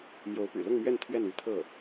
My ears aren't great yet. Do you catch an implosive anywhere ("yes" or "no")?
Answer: no